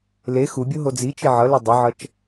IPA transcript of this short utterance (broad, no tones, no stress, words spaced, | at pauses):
le xubʲo ɦod͡zit͡ʃi ʕʌlu dˤɯʕʌt͡ʃ